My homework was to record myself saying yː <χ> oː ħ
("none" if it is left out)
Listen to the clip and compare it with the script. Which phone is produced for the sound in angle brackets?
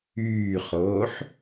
χ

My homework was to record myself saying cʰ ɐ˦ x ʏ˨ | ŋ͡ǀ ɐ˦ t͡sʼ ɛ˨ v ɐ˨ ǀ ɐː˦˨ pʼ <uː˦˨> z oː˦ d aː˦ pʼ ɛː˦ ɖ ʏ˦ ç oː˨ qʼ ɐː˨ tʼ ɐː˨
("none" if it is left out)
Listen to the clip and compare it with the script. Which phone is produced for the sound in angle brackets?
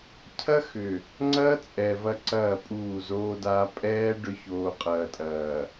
uː˦˨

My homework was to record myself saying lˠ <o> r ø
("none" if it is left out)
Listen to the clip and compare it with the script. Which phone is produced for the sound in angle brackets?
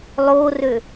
o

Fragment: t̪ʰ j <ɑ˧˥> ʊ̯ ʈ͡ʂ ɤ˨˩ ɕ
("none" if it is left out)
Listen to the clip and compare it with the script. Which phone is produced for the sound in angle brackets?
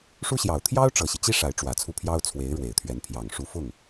ɑ˥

